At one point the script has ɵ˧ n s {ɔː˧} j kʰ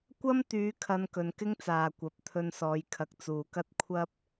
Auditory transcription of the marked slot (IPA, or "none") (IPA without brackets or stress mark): ɔː˨˧